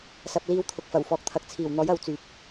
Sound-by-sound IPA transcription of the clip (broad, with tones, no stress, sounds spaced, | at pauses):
s ɐ˨ p̚ l iː˨˧ w t̪ʰ ʊ˨ k̚ f ɐ˨˩ w f ɔː˨ k̚ t̪ʰ ɐ˨ k̚ t͡sʰ iː˨˩ w n̪ ɔː˨˥ j ɐ˨˥ w t͡s yː˨ p̚